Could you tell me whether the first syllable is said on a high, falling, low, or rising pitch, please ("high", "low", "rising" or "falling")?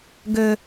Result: low